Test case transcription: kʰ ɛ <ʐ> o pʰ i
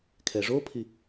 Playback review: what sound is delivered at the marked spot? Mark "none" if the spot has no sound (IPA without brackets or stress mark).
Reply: ʐ